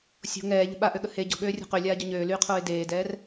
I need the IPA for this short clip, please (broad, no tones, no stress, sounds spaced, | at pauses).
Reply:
sʲ o̤ ŋ ɛː ʎ ə̤ ɓ a ʔ ø ɠ ə h e ɟ o̤ ɠ øː rʲ o̤ q ø lʲ aː ɟ o ɲ øː l yː qʰ oː ɪ̯ d eː d ɛː r